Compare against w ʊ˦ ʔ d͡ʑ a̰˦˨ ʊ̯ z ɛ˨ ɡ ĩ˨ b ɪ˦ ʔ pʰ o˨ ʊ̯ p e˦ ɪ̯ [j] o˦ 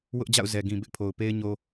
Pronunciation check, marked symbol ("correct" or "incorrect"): incorrect